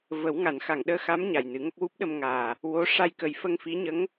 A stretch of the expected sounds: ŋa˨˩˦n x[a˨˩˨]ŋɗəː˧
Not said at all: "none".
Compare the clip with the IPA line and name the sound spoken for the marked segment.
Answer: a˨˩˨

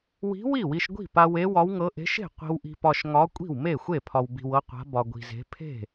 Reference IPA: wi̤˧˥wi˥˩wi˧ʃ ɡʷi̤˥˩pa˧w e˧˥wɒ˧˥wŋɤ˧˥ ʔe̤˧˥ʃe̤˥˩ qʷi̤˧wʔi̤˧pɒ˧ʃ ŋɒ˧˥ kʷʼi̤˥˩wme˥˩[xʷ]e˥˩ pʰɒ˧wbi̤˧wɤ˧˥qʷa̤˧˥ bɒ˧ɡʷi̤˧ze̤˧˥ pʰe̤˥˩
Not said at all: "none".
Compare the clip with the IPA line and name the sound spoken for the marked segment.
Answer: xʷ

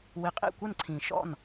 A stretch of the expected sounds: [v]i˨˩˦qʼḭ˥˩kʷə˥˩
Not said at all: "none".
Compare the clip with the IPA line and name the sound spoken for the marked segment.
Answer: w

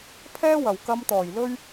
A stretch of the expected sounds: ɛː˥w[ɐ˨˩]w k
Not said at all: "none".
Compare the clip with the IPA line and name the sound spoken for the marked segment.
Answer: ɐ˨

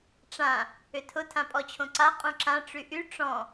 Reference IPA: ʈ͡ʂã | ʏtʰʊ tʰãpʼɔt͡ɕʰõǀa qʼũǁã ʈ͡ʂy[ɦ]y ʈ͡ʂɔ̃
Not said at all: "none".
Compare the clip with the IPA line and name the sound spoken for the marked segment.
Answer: ʔ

